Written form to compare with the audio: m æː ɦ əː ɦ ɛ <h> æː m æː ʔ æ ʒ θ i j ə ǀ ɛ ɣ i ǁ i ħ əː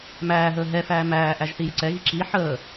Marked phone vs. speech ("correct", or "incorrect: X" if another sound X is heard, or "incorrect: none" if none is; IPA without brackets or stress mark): incorrect: f